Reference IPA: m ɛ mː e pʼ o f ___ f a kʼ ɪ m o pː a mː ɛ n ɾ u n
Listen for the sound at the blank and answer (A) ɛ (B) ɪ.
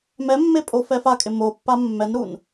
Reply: A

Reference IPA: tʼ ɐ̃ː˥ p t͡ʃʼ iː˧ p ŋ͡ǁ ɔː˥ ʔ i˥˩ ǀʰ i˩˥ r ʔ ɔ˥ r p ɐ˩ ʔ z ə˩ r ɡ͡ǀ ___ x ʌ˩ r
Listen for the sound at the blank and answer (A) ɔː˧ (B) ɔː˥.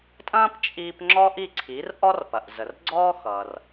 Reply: B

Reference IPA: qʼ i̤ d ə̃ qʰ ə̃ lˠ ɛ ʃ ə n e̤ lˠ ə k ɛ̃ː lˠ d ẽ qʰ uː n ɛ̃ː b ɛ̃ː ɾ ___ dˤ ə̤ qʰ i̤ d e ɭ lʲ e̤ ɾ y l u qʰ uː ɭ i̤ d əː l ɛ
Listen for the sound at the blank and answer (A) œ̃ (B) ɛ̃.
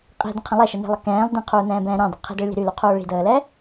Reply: B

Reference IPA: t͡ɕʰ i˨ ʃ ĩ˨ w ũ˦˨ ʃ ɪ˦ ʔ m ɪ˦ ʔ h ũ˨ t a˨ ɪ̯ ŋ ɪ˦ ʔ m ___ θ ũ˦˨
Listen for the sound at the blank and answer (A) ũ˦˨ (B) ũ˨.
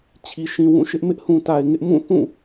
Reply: A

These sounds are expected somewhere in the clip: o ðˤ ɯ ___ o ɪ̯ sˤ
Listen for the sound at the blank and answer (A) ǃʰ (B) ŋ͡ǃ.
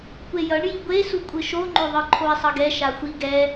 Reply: A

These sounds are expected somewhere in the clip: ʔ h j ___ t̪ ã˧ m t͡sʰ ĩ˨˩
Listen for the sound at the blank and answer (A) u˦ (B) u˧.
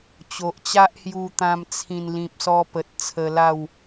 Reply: B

